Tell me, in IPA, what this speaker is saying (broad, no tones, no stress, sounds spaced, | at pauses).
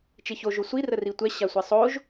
t͡ʃ e ç o ʒ o sʷ i r ə r i tʷ ɛ ɕ a sʷ e sˤ o ʒ